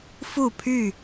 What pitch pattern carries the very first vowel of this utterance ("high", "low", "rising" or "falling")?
falling